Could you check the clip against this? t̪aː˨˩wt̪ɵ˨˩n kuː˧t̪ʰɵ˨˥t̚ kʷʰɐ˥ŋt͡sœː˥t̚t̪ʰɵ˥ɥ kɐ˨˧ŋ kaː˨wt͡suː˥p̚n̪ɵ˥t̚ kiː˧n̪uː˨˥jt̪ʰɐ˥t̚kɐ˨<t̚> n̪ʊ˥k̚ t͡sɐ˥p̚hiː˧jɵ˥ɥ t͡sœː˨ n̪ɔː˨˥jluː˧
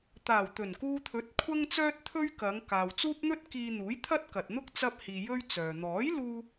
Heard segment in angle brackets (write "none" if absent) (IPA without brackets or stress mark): t̚